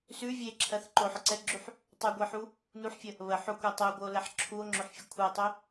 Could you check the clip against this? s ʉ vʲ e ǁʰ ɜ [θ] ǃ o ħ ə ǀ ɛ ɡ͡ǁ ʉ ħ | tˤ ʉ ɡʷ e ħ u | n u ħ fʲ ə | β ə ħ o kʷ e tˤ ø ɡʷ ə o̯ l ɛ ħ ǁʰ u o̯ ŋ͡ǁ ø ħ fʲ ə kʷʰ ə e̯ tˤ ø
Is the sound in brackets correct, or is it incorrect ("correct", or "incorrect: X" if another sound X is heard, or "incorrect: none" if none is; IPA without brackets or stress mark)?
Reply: correct